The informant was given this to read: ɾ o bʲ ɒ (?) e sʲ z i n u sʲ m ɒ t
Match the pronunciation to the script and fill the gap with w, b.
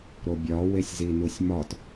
w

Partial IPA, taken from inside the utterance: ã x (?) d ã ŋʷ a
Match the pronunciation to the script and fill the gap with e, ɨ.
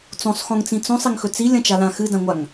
ɨ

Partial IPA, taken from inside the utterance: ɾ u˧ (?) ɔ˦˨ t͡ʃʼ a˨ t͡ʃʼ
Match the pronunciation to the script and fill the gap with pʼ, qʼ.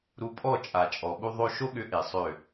pʼ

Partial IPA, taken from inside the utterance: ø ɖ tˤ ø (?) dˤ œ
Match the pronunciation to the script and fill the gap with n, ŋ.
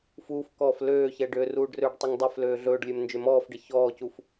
ŋ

